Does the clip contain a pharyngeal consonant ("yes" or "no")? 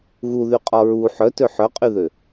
yes